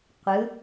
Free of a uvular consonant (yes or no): no